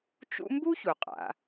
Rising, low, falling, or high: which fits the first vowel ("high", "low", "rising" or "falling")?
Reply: high